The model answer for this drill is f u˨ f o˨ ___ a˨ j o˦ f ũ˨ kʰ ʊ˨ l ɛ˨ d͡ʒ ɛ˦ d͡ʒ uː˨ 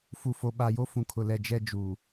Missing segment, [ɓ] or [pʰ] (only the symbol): ɓ